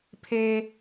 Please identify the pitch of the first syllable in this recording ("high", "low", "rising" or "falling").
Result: high